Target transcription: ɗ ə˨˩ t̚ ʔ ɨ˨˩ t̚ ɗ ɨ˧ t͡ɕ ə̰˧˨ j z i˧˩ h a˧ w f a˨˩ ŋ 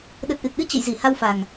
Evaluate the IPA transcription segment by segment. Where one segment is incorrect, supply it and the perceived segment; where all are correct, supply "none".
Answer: none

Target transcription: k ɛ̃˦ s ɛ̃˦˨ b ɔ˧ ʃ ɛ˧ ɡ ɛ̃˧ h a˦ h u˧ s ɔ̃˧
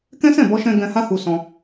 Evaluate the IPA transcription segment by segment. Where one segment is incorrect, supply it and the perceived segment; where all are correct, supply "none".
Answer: ɛ˧ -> ɛ̃˧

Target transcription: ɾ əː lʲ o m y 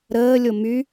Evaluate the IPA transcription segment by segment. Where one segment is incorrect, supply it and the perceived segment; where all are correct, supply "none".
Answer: none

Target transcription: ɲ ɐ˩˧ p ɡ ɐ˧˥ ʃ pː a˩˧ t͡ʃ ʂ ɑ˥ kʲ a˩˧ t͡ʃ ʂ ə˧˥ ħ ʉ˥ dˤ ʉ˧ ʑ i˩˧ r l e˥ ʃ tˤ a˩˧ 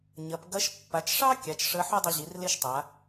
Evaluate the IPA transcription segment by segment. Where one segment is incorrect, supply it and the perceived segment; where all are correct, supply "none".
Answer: none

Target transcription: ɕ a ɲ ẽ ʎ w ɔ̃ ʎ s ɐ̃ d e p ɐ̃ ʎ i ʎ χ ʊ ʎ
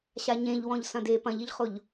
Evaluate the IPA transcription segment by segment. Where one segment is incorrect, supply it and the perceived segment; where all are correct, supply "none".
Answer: none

